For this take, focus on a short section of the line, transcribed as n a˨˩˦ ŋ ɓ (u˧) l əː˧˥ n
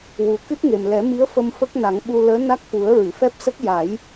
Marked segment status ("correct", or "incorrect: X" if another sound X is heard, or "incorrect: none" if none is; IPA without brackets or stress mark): correct